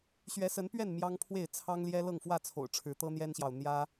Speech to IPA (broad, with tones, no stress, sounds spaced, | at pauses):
ɕ ɥ ɛ˨˦ s ə˨˦ n p ɥ ɛ˥˨ n m j ɑ˦ ŋ pʰ w e˥˨ ɪ̯ t͡sʰ ɑ˦ ŋ l j ɛ˦ l ɤ˥˨ ŋ f w ä˥˨ t͡sʰ o̰˨˩ ʊ̯ ʈ͡ʂʰ ɻ̩˨˦ t̪ ɤ˦ n̪ j ɛ˦ n ɕ j ɑ˨ ʊ̯ n̪ j ä˦